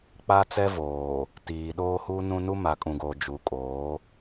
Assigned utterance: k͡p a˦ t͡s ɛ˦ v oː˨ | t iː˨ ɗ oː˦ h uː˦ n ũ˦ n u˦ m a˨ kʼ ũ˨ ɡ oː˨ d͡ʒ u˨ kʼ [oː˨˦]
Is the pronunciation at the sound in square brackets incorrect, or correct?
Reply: correct